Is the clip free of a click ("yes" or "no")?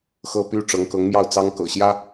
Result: yes